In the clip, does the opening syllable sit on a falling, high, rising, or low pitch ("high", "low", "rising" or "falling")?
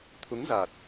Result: rising